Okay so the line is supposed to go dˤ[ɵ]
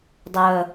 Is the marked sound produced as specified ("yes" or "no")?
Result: no